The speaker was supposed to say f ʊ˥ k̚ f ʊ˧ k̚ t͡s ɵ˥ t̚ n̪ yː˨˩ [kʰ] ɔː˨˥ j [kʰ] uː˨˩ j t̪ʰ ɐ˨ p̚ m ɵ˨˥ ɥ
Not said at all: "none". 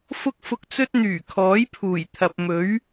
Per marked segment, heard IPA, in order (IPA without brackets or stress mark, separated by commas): kʰ, pʰ